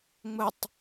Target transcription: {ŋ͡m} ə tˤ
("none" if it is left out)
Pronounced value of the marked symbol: ŋ͡m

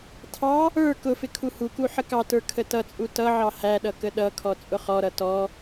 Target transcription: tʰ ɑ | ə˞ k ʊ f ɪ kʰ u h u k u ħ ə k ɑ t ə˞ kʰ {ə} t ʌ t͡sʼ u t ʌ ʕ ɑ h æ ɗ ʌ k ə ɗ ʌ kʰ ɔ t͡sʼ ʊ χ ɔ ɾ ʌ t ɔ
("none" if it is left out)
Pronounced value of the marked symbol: ə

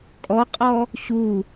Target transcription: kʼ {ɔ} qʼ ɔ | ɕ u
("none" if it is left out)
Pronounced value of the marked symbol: ɔ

